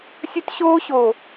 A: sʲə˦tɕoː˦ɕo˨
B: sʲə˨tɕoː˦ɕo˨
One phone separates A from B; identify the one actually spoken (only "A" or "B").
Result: A